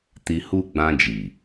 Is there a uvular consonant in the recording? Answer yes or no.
no